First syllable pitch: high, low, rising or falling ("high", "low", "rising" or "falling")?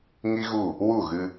high